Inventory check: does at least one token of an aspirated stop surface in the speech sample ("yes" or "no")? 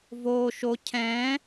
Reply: yes